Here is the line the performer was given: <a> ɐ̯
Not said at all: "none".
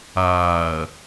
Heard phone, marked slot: aː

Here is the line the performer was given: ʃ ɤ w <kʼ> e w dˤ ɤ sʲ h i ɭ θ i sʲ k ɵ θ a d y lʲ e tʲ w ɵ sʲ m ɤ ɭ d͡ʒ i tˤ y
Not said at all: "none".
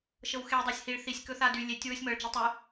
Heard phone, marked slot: x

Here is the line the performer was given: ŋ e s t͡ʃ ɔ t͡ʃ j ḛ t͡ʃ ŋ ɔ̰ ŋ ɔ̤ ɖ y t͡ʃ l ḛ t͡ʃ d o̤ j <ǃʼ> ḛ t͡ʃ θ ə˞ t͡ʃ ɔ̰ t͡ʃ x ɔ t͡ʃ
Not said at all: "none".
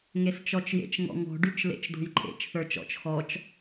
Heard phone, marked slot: ǃʼ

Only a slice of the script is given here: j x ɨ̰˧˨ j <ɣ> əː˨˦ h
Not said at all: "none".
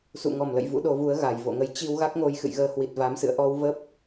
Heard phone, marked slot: ɣ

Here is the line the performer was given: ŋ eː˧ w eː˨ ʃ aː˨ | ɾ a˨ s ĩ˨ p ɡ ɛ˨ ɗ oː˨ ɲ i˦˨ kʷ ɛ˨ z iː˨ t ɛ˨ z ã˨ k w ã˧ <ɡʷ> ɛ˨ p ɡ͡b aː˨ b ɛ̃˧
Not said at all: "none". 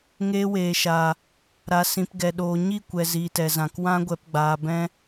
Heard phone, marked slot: ɡʷ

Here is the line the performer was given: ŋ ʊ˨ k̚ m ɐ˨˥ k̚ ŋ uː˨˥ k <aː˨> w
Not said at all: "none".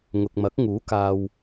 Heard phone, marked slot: aː˨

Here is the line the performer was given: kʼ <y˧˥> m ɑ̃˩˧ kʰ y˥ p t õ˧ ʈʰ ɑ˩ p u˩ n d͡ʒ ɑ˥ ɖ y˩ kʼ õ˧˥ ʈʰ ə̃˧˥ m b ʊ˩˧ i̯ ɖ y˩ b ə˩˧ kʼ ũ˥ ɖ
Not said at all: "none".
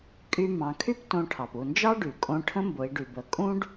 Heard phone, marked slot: y˧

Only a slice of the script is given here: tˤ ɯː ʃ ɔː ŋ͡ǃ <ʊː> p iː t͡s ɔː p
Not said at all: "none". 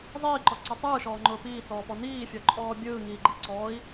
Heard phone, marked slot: ʊː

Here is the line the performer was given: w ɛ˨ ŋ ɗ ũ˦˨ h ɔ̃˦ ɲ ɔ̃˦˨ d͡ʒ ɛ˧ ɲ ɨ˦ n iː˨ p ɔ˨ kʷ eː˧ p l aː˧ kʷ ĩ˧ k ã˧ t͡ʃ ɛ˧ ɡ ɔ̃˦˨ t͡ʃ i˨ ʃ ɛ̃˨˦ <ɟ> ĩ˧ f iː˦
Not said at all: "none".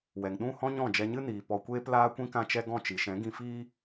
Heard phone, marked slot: ɡ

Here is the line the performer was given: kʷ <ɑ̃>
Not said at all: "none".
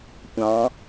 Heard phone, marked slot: ɑ̃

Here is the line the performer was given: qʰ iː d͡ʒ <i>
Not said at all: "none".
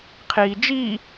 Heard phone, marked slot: iː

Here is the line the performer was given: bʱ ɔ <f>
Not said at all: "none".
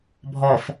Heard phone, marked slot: f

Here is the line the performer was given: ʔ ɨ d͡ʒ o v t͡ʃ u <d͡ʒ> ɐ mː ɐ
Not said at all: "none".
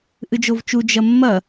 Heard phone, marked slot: d͡ʒ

